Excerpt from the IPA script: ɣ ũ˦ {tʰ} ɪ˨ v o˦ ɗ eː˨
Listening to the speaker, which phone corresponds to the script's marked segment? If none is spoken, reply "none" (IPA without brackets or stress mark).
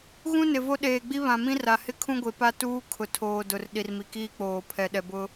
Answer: n